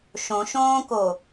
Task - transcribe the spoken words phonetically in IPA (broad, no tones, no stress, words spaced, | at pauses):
ʃõʃõːko